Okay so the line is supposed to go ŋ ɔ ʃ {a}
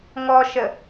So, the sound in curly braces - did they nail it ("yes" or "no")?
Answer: no